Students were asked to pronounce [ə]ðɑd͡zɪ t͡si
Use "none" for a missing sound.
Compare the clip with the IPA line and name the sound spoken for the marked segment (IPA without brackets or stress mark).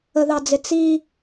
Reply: ə